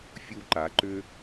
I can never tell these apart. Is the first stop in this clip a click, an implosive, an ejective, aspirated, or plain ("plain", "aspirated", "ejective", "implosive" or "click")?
click